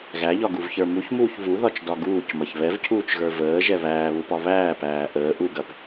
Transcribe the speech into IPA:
ɣ æ ʎ ɒ ɡ u v ç ə˞ m u ç m uː ç v u ð ɒ t͡ʃ d ɒ ɡ uː c m ɐ ç β ɛ v cʰ uː t͡ʃ ɣ ə˞ v əː ʒ ɛ β æː β u p ɒ β æː p æː ʔ əː ʔ u ɡ ɐ p

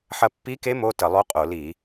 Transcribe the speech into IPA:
ħ ɐ˧ pː i˧˥ k e˧˥ m o˧˥˧ t ə˧˩˧ lˠ o˧˥ qʼ o˧˩˧ l i˧˩˧

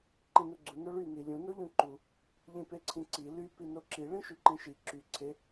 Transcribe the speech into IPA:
ǃ ĩ n u ɡ͡ǀ u n o ɭ y n i lʲ ũ n o ʎ ũ ǃ u | ʎ ĩ p e ǀʰ ĩ ǀ i l y p i n o ǁ i ɭ ĩ ʃ y ǃ ĩ ʃ i ǁ y ǀʰ e

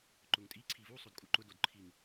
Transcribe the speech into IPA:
ǃ ʊ ŋ tʼ i ǀʰ i v u sˤ o d kʼ u ǃ ʊ d o d ǃʰ i ŋ

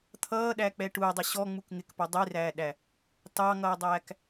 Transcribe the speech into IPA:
t̪ʰ ʌː ɗ æ k͡p ɛ ʈ u dˤ ə ɕ ɔ ŋ͡m u k ŋ ɪ k p ʌ dˤ i r æː ɗ æ | t ɑ ŋ ʌː dˤ æː k

